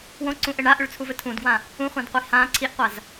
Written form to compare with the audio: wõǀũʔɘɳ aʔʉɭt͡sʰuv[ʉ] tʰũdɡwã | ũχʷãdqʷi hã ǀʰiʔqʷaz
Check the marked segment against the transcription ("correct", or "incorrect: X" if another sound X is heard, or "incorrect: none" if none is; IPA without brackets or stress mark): incorrect: ɘ